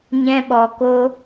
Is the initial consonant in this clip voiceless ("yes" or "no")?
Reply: no